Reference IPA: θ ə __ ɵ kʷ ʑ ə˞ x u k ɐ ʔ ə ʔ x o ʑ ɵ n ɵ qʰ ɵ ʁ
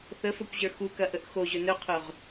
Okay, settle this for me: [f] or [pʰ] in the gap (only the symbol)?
f